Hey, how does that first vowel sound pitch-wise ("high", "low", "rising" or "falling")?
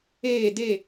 falling